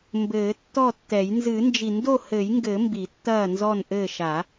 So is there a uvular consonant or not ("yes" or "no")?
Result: no